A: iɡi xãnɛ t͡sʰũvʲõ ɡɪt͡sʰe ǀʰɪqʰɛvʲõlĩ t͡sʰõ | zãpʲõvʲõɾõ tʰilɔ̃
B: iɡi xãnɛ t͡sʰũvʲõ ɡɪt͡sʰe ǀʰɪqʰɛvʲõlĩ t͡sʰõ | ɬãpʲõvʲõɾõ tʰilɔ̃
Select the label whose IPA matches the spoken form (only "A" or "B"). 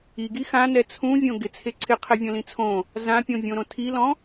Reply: A